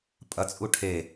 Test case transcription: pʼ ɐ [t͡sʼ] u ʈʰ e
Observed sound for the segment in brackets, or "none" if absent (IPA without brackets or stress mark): t͡sʼ